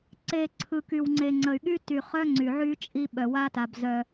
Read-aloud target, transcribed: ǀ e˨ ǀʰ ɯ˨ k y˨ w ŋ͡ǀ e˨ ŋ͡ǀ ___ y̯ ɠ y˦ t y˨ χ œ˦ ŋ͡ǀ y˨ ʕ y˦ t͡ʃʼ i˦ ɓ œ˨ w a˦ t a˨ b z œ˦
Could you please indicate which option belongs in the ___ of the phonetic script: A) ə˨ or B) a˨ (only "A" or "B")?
A